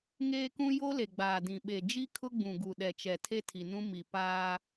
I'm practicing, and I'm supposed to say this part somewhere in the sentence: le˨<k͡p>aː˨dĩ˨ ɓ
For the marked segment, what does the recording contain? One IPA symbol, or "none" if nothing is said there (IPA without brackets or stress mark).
ɡ͡b